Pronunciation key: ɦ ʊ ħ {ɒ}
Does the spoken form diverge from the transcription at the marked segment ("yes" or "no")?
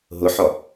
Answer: no